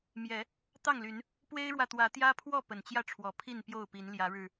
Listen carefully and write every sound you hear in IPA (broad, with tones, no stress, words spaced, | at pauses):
mjɛ˨˦ | t̪ɑ˥˨ŋly˨˦n | pwe˦ɪ̯ɻwä˨ t̪wä˨˦t̪jä˦pʰwɔ˥˨ pə˨˩nt͡ɕjä˥˨ʈ͡ʂʰwɔ˨˦ pʰi˥˨npjo˥˨ʊ̯pi˨˦n ljä˨˦ɻɻ̩˨˩